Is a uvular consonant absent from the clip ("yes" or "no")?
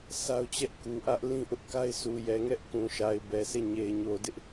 yes